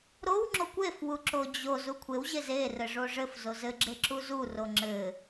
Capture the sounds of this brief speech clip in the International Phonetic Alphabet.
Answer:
ɾ o w ŋ͡ǁ o kʷ e f w u ǁ o d͡ʑ o z u kʷʰ e w ʑ e z e r ɘ ʐ o ʐ ɘ f z o z ɘ ɡ͡ǁ e ǁ u z u r o ŋ͡ǁ ɘ

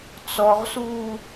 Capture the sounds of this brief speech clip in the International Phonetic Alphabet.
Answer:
t͡s ɔ ʁ s uː

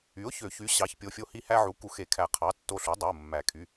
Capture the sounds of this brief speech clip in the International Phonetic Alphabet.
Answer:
y˩˥ ʊ̯ ç ø˨˩˦ ç y˩˥ ɕ ɑ˩˥ ç pʲ o˩˧˩ fʲ o˧ h i˧ h æ˧ ʕ u˩˥ k u˨˩˦ x e˨˩˦ kʰ æ˨˩˦ qʰ ɑ˩˥ tː o˧ ɬ u˩˥ dˤ i˩˧˩ ʊ̯ mː æ˨˩˦ kʰ y˩˧˩

